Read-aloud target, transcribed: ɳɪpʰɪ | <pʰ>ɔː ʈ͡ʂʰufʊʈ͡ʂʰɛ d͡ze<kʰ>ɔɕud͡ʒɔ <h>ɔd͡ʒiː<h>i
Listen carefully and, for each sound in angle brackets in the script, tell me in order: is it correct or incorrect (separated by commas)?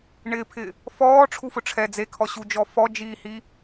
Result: incorrect, correct, incorrect, correct